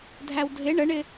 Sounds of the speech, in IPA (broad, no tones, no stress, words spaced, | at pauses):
dʱæwdʱɪ ɳəɳɪ